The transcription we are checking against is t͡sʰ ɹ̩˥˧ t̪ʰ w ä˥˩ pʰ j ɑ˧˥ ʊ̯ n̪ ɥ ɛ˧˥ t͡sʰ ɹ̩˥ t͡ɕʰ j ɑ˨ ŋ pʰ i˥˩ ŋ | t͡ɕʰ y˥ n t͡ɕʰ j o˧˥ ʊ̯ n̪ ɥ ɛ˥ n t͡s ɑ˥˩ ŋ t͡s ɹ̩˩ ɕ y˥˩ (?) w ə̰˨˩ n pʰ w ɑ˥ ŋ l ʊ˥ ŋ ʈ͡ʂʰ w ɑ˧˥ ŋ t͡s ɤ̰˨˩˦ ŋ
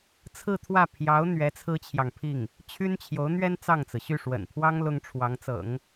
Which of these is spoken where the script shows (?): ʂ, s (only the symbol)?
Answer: ʂ